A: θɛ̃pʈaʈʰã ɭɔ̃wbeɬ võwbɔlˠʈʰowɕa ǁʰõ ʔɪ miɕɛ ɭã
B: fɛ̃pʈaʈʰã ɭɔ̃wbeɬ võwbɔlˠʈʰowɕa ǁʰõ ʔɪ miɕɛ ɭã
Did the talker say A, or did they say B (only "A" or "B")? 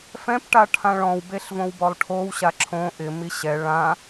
B